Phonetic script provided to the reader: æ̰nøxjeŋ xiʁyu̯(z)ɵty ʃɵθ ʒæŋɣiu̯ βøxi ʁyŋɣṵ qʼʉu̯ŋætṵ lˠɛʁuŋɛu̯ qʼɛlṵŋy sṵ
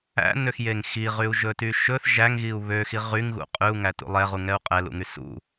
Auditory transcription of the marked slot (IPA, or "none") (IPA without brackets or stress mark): ʒ